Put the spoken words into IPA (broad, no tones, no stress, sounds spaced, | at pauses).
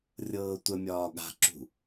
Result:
rʲ ɤː tʷ ə mʲ ɒː ɠ a̤ ǁ ṳ